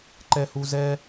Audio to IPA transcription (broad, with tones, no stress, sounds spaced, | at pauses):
ǃ ɛ˨ h u˨ z ɛ˦